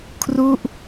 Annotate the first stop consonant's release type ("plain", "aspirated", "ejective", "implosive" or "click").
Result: aspirated